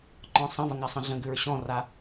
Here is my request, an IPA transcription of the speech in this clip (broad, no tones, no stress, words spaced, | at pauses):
ǃɔ̃sˤə̃vəŋ asˤə̃ɮə̃ɡʉɹ ɕɔ̃ra